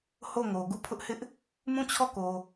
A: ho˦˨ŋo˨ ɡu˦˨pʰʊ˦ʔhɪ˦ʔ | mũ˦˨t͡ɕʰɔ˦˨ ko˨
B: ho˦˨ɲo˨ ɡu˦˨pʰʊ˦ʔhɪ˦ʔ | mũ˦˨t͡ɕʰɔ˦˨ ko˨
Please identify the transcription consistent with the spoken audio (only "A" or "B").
A